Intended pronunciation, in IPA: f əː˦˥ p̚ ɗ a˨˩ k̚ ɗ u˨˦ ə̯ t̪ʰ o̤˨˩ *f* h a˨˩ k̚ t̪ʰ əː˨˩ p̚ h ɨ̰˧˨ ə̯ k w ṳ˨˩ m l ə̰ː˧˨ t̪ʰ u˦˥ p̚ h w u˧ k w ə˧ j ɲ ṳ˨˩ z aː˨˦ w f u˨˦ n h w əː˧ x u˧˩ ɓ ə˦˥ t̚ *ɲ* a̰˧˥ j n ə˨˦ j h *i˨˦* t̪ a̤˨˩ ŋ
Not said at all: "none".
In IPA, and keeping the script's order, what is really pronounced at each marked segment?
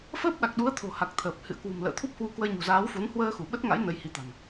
none, ŋ, i˨˦

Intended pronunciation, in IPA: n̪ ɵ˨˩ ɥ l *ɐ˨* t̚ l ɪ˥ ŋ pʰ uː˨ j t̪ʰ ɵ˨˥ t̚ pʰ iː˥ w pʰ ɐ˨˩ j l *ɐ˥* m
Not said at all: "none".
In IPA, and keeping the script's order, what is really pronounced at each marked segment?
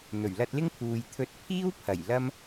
ɐ˧, ɐ˥

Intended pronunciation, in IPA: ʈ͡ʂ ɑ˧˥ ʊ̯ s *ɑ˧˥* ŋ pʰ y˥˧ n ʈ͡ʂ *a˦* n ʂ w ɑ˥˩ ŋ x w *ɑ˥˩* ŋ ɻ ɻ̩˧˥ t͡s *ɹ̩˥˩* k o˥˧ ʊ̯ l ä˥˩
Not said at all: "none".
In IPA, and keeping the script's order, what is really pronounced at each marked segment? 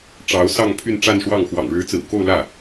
ɑ˥˧, a˥˧, ɑ̰˨˩, ɹ̩˨˩

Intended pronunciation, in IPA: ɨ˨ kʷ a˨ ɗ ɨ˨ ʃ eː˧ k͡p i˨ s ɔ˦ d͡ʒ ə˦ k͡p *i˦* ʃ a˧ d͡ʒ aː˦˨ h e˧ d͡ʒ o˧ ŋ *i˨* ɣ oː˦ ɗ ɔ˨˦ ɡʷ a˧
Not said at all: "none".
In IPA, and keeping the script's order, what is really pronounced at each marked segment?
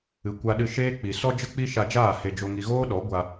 i˦, i˧

